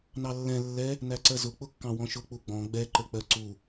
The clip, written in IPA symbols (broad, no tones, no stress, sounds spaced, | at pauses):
n ɑ lː ɛ̃ lː ɛ | n æ ǀ ɜ z ʊ k͡p ʊ kː ɑ̃ w ɔ̃ ʃ ʊ k͡p u ɡ͡b ɔ̃ ɡ͡b ɛ ǃ ə k͡p ɜ ǀ u